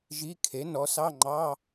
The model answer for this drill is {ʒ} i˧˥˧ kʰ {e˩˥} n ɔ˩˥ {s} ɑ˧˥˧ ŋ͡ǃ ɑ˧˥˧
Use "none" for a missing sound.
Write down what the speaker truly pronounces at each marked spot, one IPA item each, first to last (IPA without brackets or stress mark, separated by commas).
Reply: ʒ, e˩˥, s